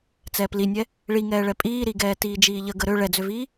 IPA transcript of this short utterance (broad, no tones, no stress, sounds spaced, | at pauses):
t͡s ɛː p l i nʲ ɛ | ɭ i ŋ ɛː ɭ ɛ pʼ iː ɾ i ɡ ɛː t iː d͡ʒ iː ʎ ə ɡ ə ɾ ø ɭ ɛ d͡z ø v iː